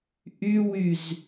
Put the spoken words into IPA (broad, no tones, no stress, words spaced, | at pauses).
ʔywyz